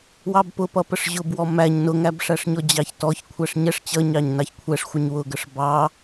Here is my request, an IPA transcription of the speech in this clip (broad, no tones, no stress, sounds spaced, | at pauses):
w ɑ b p ʊ p ʌ p ə ʂ ʑ ʊ b w ɔ m æ ɲ n ʊ ŋ æ b ʂ æ ʂ ɲ ɔ d͡ʑ ɑ ç t ɔ ç kʷʰ æ ʂ ɲ ɛ ʂ t͡ɕ ʌ ɲ ɑ ɲ n ɑ ç kʷʰ ɛ ʂ xʷ ə ɲ w ʊ ɡ ə ʂ b ɑ